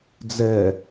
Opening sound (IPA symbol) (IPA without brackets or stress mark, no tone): d͡z